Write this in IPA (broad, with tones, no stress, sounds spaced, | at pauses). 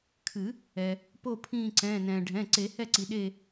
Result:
kʰ ɨ˨˩˦ | ɛ˩ | p o˦˨ pʰ ĩː˦˨ ǀ ɛ̃ː˩˧˩ n ɛ̃ː˩ ɖʱ ɛ̃˩˧˩ ǀ e˨˩˦ h ɛ˦˨ ǀ i˩ ɗ e˦˨